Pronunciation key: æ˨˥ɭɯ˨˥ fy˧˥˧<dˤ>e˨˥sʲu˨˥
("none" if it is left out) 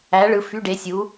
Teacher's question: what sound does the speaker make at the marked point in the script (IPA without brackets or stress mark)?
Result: ɖ